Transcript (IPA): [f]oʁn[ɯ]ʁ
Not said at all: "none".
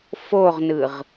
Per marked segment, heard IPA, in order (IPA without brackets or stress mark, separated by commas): f, ɯ